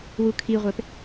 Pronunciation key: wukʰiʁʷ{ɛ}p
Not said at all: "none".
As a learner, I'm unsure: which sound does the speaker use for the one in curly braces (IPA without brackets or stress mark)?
ɛ